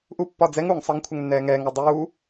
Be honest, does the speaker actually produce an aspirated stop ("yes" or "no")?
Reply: yes